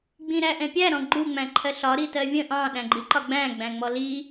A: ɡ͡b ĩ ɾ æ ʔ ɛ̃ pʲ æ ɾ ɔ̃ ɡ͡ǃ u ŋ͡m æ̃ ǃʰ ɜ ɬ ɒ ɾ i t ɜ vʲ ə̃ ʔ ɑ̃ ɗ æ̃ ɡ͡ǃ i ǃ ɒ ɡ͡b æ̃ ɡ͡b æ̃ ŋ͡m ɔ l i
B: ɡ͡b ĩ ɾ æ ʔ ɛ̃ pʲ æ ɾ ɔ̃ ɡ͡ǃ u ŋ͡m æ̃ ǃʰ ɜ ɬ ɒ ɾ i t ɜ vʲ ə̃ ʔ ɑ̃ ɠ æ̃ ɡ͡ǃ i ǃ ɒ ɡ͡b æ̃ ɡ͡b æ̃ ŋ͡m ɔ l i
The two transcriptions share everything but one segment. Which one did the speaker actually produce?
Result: A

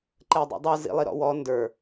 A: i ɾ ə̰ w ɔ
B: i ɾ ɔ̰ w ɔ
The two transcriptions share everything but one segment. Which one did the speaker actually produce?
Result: B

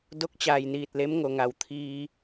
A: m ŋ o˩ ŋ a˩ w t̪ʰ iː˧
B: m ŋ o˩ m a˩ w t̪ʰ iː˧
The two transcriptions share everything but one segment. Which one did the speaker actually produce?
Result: A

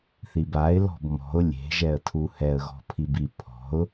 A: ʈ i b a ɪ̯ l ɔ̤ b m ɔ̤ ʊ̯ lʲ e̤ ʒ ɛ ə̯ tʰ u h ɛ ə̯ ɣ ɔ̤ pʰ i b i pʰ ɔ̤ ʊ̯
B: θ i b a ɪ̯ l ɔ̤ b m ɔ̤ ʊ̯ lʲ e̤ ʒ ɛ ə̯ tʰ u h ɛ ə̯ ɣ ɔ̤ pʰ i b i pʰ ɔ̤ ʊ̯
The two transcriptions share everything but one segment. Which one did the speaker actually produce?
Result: B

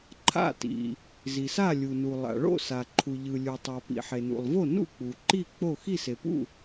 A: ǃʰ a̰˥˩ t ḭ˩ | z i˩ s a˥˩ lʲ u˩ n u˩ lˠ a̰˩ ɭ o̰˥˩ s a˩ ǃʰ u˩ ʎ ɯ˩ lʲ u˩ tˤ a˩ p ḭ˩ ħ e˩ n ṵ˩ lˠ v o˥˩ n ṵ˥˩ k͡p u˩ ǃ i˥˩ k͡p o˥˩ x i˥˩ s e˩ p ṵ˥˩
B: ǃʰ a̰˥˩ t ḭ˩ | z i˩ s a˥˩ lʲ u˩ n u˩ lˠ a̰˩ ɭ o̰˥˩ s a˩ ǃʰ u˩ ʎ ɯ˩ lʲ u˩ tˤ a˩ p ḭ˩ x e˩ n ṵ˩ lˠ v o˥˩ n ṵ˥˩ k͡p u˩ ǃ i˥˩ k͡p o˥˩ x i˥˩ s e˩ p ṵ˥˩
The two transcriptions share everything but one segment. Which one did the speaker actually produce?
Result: A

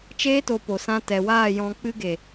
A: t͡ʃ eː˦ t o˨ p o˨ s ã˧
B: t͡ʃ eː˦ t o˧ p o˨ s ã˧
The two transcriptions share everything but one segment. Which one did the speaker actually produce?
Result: B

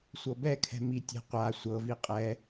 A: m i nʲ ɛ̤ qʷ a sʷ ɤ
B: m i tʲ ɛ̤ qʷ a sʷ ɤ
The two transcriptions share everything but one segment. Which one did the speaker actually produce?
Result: B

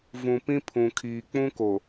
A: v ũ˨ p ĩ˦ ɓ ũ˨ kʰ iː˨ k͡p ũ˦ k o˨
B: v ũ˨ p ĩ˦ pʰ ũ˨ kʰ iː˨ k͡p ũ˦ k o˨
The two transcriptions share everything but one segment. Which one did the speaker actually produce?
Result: B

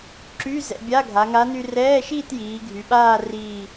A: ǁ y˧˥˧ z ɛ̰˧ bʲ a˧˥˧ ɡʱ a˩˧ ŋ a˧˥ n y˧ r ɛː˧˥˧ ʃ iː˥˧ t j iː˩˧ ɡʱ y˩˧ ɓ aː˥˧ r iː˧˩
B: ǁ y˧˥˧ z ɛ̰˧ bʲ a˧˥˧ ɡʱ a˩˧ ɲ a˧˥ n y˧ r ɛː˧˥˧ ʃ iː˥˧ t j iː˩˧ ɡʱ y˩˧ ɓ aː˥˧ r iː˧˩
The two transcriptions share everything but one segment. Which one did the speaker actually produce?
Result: A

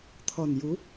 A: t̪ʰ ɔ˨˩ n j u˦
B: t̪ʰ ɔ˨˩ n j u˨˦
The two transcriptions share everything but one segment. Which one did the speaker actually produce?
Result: B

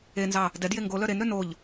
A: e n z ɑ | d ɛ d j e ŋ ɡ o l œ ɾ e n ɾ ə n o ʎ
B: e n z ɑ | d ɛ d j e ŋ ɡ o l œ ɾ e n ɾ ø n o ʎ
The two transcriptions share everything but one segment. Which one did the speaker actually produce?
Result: B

